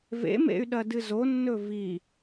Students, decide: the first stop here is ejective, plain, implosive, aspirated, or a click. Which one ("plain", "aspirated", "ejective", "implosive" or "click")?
implosive